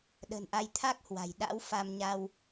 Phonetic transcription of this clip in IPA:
ɗ ə̤˨˩ n ʔ a˧ j t̪ʰ a˦˥ k̚ h w a̤˨˩ j ɗ a̰˧˥ w f a˧ m ɲ a˧ w

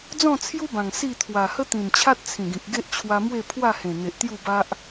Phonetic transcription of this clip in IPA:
d͡z ɔ̃˥˧ t͡sʰ j u˦ b ã˨˩ ŋ s i˥˧ t̪ʰ w a˨˩ h ə˦ t̪ ĩ˨˩ n t͡ɕʰ a˦ t̚ t͡sʰ ĩ˨˩ ɡ ĩ˨ k̚ ɡ e˦ ʔ t͡ɕʰ w a˧ m w e˥˧ pʰ w a˥˧ h ẽ˨˩ n̪ e˨ ʔ t̪ j u˥˧ b a˦ ʔ

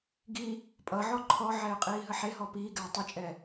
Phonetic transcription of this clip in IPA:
ɡ iː | pʼ ʌ ʕ ɔ ǃʰ ɔ ʕ ɛː qʼ iː ɦ ə ħ e ɦ ɔ p iː ɡ ɛː tˤ ʌ t͡ʃʼ ɛː

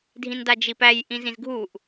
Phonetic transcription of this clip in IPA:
dʱ ĩ n d a d͡ʒ i p æ j ʔ ĩ z ĩ z ɡʱ u ʔ

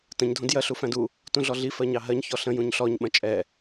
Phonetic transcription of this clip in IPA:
t ə̃ ɲ dʱ ũ d j ɜ ɬ u f æ̃ d u | t ũ ɮ ɔ ɮ i f ɜ ɲ ɑ ɦ ɜ ɲ ç ɔ ɬ ə̃ j ũ ɲ ɬ ɔ ɲ ɓ ə̃ t͡ʃʼ ɛ

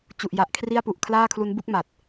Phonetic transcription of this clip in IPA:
t͡ɕ u˨˩ ʔ j a˨˩ ʔ kʰ r i˥˩ a̯ p u˨˩ ʔ kʰ l aː˥˩ kʰ l u˦˥ n b u˥˩ k̚ m a˨˩ t̚

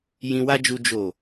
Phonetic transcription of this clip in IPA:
j ĩ˧ w a˦ d͡ʒ u˧ d͡ʒ o˨

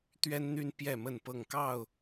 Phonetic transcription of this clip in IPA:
t̪ ɥ ɛ˦ n n̪ y˦ n p j ɛ˥˨ m ə˥˨ n p ɤ˥˨ ŋ k ɑ˥˨ ʊ̯

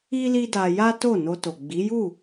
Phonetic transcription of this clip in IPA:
i˦ l i˦ d a˧ j a˦ t o˦˨ n o˧ t o˨ ɡ͡b i˨˦ j u˦˨

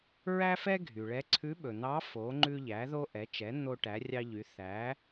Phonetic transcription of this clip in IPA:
ɹ æ˥ f ɛ˥ ɡʱ y˩ ɭ ɛ˧˥ ǀʰ ʉ˧˥ ɓ ɵ˩ n̪ ɑ˧˥ f o˩˧ ŋ͡ǃ ʉ˧ ʎ æ˩˧ ð o˧ ʔ ɛ˩˧ t͡ʃ ɛ˩˧ n̪ o˧ ʈ æ˩˧ rʲ ɑ˧ ʎ y˩˧ θ æ˩˧

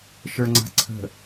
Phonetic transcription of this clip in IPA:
ʃ ə˞ ŋ͡ǀ a̤ ǀʰ ə̤

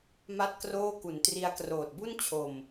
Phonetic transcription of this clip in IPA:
m a˥˩ t̚ k r oː˥˩ k u˩˦ n t r i˧ a̯ k r oː˨˩ t̚ b u˥˩ n t͡ɕʰ o˨˩ m

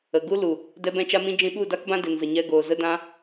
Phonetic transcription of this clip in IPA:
ə˨ ɡ u˦ l u˨ | d ɛ˧ b ɛ̃˧ t͡ʃ a˧ m ĩ˧ d͡ʒ ĩ˧ ɓ u˦˨ d a˦ k b ã˦ d e˨ n z ə˨ ɲ ɛ˧ ɡ oː˨ z ə˧ d ã˧

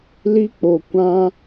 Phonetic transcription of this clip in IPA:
l i˦ k͡p o˨ kʷ ã˧

